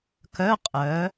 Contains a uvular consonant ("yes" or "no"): yes